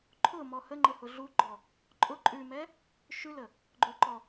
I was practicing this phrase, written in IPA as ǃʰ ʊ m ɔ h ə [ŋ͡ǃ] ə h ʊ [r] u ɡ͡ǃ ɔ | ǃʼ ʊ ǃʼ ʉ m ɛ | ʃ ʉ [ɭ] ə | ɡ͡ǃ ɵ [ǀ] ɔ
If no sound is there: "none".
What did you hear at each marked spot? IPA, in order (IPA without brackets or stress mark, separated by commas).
ŋ͡ǃ, ɮ, l, ǃ